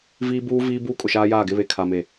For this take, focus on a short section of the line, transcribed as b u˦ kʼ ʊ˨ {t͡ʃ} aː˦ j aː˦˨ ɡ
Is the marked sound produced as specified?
no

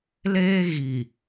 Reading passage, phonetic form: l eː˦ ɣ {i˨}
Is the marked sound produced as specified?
yes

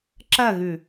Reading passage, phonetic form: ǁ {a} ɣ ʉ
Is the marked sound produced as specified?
no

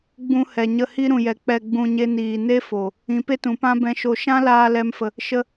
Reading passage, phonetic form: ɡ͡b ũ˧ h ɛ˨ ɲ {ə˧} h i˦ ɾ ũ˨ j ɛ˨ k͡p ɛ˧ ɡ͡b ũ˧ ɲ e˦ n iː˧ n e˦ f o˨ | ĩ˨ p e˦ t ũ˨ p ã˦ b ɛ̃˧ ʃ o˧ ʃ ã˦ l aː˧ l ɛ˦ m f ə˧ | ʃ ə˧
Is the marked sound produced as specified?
yes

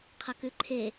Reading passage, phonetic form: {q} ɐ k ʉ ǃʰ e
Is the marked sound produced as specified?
no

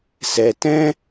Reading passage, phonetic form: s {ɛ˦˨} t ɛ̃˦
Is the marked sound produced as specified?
no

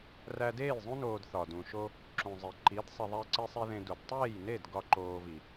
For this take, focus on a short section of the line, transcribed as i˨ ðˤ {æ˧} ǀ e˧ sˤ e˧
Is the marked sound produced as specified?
yes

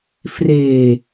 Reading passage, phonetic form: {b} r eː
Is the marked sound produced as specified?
no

